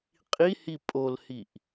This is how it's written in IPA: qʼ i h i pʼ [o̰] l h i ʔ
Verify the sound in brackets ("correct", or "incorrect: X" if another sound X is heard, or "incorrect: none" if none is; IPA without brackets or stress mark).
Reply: incorrect: o